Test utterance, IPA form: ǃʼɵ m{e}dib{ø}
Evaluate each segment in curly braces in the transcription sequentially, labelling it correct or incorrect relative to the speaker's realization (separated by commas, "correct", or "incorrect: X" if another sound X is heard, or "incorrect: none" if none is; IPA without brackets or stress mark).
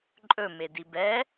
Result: correct, incorrect: ɛ